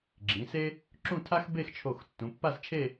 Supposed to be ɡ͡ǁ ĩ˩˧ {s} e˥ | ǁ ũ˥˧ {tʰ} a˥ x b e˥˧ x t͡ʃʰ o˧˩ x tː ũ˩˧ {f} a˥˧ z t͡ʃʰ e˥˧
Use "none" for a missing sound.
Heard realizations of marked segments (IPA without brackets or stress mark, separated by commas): s, tʰ, pː